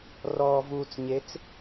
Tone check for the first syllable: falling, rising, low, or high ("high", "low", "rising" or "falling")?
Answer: low